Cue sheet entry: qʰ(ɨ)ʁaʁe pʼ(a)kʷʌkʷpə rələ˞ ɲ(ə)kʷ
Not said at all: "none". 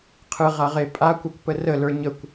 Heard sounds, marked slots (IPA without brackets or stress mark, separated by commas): ɨ, a, ə